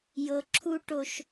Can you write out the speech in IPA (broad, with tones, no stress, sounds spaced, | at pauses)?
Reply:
j ɤ˨ ǁʰ u˦ ʈ o˦ ʃ